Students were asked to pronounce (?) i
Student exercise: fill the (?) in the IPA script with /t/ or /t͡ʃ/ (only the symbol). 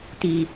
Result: t